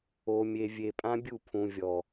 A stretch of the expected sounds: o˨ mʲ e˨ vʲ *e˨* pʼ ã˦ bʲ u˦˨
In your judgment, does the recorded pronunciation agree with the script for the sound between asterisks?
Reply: yes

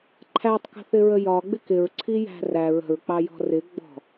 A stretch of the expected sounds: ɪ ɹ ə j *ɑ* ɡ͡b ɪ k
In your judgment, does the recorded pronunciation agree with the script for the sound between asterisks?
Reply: no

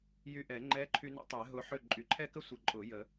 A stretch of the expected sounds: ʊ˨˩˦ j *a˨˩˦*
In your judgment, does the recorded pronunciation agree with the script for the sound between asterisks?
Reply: no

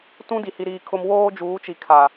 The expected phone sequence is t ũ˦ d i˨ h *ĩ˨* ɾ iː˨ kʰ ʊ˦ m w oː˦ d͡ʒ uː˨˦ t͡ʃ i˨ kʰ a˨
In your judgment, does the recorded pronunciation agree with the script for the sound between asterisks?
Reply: no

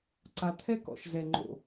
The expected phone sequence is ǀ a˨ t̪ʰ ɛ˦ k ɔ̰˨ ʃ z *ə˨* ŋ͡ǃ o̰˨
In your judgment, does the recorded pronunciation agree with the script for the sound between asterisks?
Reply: no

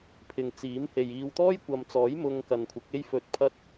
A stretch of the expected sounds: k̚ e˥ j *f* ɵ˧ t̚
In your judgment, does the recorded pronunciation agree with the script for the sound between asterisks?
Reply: yes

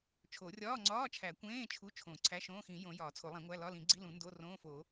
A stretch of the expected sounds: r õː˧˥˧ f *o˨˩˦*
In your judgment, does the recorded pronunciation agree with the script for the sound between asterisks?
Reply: yes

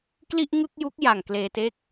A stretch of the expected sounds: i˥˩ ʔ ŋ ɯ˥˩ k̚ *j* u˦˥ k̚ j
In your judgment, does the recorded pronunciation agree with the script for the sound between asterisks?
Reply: yes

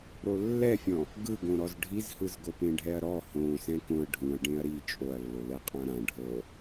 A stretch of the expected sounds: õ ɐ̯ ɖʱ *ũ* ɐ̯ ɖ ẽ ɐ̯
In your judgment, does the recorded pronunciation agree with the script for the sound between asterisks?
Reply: yes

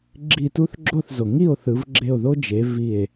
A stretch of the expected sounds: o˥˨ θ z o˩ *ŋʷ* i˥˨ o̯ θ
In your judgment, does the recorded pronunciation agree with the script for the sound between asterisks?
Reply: no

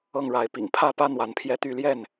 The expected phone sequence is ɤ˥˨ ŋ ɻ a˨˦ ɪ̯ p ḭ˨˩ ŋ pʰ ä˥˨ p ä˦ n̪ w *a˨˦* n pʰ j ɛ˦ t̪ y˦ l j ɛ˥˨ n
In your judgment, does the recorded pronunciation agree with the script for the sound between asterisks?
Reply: yes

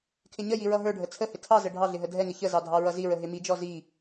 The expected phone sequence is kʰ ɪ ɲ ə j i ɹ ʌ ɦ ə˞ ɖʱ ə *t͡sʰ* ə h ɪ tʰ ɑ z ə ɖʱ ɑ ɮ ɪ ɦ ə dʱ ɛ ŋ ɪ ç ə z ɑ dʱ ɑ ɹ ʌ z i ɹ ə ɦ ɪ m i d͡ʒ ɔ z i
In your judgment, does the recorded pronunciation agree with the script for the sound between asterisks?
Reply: yes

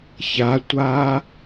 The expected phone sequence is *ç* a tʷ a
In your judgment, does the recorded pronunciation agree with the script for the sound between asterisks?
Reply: yes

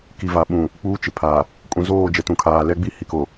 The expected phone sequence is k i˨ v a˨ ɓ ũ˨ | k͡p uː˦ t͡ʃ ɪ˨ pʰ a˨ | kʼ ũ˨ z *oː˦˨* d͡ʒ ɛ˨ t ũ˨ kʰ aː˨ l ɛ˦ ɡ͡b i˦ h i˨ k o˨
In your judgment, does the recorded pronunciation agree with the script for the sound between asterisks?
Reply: yes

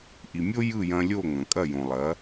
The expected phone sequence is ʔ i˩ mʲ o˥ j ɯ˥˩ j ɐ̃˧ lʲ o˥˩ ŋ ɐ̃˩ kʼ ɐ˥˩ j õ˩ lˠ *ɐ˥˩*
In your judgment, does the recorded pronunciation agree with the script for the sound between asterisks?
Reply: no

